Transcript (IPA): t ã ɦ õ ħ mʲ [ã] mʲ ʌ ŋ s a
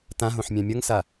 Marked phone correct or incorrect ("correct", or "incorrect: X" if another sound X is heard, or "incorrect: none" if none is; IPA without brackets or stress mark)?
correct